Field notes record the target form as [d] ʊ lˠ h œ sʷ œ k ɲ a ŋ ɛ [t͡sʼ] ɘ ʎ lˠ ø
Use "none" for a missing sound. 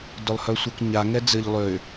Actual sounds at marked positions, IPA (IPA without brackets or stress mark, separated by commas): d, d͡z